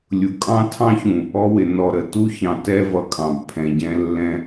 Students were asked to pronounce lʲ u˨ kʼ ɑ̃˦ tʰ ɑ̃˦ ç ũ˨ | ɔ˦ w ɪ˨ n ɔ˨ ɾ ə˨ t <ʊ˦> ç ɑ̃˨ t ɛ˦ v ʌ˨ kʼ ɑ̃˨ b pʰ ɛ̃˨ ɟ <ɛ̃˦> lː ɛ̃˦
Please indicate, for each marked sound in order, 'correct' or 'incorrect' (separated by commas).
incorrect, correct